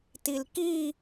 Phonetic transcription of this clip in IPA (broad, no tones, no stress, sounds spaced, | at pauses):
t i l k i